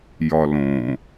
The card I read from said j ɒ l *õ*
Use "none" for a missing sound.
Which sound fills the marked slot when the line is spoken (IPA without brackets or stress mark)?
õ